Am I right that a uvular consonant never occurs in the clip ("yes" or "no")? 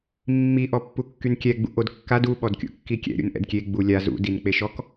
yes